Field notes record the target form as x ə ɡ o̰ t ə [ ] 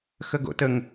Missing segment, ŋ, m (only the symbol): ŋ